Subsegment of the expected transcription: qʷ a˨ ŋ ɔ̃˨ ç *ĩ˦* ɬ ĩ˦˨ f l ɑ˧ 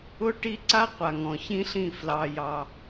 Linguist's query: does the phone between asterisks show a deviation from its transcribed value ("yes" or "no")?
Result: no